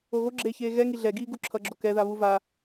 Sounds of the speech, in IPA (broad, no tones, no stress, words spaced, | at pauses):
oɣoɡ͡ǁeːçeː ɣɛ ŋiɮɛɡiː ɡuǁʰʌɡ͡ǁo kɛða βuva